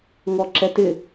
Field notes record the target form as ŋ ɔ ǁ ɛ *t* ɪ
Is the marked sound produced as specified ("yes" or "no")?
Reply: yes